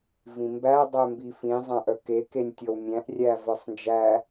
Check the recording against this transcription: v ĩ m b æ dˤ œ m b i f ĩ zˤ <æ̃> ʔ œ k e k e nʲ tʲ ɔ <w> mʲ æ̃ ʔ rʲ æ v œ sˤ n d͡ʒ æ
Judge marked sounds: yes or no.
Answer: yes, yes

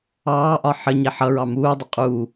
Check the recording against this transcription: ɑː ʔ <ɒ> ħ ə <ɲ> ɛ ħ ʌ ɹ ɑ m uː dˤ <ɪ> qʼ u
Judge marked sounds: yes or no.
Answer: yes, yes, yes

